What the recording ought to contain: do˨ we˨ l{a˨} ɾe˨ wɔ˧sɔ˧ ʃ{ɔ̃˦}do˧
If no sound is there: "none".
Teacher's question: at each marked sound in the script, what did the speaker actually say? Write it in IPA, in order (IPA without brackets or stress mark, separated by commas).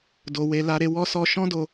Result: a˨, ɔ̃˦